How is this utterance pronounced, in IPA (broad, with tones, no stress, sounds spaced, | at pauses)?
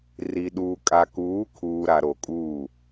r i˨ ɗ uː˨ kʼ a˨ k uː˨˦ kʰ uː˨ ɾ a˨ ɾ o˨ kʼ uː˦˨